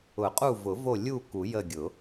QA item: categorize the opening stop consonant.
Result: ejective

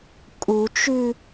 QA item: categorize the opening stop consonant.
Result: ejective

